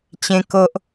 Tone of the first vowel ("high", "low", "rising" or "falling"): high